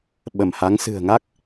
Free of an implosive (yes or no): no